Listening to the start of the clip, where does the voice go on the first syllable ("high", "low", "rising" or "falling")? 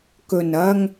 low